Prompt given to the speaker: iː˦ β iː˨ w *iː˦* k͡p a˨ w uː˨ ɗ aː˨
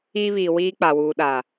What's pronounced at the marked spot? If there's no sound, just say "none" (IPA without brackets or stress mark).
iː˦